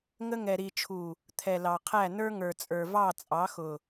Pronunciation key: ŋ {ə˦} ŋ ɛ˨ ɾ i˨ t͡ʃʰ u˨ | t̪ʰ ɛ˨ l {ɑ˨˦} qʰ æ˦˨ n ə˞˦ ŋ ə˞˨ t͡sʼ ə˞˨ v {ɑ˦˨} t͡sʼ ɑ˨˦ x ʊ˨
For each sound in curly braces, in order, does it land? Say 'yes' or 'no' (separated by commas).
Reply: yes, no, yes